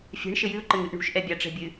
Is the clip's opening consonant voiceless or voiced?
voiceless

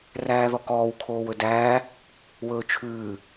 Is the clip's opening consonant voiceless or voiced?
voiced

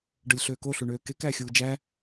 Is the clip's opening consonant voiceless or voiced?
voiced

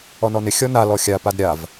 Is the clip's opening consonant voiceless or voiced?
voiced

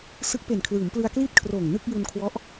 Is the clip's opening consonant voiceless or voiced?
voiceless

